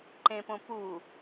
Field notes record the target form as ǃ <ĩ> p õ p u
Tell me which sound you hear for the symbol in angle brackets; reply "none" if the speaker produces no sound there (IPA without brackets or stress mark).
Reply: ẽ